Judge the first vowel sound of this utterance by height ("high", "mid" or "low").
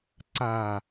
low